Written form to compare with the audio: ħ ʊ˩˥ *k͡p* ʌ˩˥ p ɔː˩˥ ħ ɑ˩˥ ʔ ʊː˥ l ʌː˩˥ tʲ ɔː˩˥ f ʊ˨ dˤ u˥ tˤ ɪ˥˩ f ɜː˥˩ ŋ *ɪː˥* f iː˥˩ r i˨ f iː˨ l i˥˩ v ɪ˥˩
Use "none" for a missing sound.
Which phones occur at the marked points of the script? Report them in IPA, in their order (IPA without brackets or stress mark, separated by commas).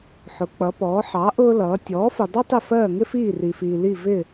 k͡p, ɪ˥